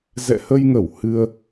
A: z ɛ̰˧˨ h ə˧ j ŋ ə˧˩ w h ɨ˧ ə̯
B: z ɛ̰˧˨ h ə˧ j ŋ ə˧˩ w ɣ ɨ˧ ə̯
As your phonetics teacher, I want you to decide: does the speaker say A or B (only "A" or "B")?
A